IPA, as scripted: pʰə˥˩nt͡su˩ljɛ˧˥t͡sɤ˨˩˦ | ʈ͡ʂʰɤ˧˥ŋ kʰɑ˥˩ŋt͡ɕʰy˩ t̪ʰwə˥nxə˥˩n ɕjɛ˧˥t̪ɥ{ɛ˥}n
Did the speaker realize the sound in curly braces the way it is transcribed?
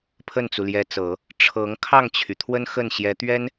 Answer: yes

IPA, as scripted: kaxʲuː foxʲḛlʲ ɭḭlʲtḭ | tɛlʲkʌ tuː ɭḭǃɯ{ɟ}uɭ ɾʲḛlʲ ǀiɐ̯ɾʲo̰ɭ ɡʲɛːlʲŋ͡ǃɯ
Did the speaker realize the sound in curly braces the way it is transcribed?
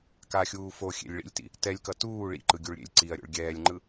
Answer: no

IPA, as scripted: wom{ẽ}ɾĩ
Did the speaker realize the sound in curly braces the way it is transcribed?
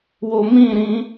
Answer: no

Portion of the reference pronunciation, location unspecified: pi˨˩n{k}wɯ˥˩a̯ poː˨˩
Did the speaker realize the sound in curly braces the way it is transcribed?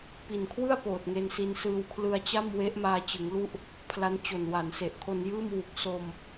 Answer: no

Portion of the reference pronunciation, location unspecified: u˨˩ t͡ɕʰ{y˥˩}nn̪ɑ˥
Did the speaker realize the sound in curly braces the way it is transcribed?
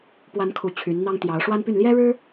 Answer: no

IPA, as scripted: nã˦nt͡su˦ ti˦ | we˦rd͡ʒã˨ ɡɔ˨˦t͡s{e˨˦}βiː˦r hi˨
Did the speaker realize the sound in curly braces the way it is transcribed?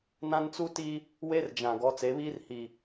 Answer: yes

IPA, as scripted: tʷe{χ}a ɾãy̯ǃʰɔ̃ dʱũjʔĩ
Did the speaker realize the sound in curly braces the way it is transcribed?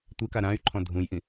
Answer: no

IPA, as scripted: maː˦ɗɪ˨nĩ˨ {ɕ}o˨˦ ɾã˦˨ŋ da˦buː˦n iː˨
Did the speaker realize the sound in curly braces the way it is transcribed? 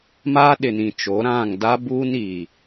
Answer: no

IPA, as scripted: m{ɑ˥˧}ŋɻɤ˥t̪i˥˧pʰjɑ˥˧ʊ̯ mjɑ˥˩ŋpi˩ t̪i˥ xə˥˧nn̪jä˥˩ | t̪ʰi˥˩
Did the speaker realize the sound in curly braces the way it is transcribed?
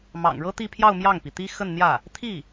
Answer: no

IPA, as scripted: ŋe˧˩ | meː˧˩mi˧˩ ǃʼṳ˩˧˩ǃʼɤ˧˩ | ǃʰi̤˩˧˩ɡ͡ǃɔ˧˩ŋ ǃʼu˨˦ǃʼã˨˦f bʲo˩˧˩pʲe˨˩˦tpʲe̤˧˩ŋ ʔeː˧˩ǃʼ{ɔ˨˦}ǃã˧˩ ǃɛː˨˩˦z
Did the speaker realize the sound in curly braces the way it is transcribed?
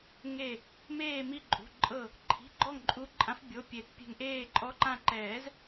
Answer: yes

